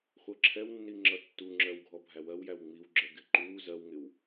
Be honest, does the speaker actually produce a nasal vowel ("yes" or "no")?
no